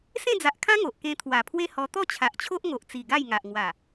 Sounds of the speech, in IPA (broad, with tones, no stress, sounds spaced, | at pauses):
s ẽ˥˧ d͡z a˨ ʔ kʰ ã˦ ŋ o˨ ʔ k ẽ˧ t̪ʰ w a˨˩ pʰ w e˦ h ɔ˧ t̪ ɔ˥˧ t͡ɕʰ a˨ ʔ t͡ɕʰ o˦ ʔ ŋ o˨ ʔ t͡s i˨˩ ɡ a˥˧ j ŋ a˨ ʔ ŋ w a˨˩